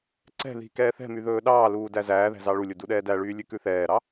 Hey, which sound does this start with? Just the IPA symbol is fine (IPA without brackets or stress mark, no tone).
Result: ǀ